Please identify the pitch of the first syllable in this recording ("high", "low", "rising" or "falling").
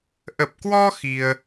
low